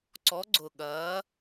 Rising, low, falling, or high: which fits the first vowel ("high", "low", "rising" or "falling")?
rising